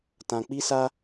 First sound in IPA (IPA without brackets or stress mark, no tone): t